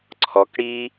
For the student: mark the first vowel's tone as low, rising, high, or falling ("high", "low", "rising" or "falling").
rising